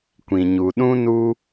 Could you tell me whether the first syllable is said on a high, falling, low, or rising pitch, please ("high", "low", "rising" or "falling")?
low